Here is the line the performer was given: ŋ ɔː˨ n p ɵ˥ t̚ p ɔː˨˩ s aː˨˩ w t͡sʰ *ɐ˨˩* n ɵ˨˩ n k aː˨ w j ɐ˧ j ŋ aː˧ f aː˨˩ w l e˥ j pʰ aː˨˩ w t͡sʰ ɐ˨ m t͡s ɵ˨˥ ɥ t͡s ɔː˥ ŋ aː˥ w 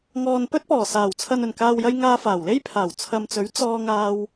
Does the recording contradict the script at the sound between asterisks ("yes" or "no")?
yes